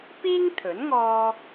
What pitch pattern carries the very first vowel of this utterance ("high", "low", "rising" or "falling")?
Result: high